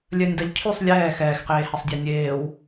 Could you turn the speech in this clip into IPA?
lʲ œ nʲ d a ʎ cʰ y sˤ lʲ ɛː x ɛː x q eː h ɛ sˤ dʲ a nʲ eː w

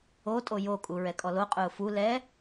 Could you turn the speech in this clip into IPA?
o tʼ o j o kʼ u ɹ ɛ kʼ ɔ l o qʼ ʊː f u l ɛ

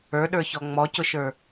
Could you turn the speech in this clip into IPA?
ə˞ ɗ ə˞ ç ɔ ŋ͡m ɔ c ʊ ʃ ə˞

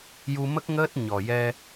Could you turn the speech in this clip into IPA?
j u˧ m ə˦˥ k̚ ŋ əː˦˥ t̚ ɲ ɔ˨˩ j ɛ˧

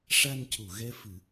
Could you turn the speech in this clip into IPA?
ʂ a˧ n c u˨˩˨ ɣ ɛ˧ f ɨ˨˩˦

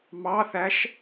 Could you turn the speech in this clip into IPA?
m ɑ θ æ ʃ

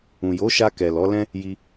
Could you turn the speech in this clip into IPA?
ũ˨ j o˨˦ ʃ a˧ k ɛ˨ l ɔ˨˦ l ɛ̃˦ | j i˧

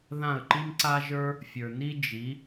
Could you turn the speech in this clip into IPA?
ð ã˥˩ ə̯ ǃ i˥ m ǀ a˥ ʒ ə˞˥ | fʲ ə˞˩ n i˥ d͡ʒ i˩˥

